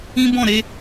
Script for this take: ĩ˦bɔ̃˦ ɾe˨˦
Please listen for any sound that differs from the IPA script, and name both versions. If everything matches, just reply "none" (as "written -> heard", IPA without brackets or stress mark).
ɔ̃˦ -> ɔ̃˦˨